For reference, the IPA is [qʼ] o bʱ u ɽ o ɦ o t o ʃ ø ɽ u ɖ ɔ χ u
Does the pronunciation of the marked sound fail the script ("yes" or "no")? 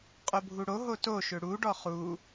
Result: no